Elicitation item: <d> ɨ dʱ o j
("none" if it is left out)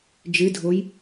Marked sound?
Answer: d͡ʒ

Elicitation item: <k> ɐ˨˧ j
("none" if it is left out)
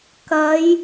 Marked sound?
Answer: k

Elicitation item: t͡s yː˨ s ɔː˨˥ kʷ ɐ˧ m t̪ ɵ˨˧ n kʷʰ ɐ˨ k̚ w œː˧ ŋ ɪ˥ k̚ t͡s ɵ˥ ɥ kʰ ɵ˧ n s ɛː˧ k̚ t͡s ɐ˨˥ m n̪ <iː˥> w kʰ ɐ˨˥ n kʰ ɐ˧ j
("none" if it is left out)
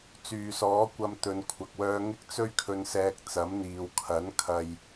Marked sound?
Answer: iː˨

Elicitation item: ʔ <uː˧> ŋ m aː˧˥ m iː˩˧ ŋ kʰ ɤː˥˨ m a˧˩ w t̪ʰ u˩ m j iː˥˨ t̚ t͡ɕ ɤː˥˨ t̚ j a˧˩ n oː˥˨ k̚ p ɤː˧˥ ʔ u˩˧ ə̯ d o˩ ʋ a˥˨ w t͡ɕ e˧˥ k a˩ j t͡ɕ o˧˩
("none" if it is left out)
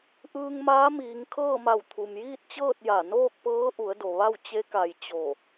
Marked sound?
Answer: ɯː˧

